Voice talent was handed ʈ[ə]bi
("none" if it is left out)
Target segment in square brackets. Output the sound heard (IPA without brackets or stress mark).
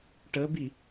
ə